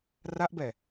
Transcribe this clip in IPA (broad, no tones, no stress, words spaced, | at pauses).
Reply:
raʔbɛ